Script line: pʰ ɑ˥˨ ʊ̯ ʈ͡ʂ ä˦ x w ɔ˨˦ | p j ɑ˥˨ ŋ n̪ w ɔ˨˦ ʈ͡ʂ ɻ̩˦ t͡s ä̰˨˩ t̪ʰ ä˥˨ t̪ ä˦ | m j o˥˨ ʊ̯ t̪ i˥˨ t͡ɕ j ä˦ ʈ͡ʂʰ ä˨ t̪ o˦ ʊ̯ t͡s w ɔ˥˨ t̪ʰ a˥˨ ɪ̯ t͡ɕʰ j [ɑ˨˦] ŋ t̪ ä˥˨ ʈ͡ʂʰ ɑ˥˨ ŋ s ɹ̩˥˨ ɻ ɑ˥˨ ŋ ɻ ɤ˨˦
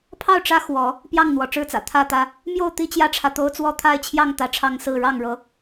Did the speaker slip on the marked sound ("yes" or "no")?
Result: yes